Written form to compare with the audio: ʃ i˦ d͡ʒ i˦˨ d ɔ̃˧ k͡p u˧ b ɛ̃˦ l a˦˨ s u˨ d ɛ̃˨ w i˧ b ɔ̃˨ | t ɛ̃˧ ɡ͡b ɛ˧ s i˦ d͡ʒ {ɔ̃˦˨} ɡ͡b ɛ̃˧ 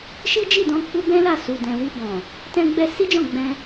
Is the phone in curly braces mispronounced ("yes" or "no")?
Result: no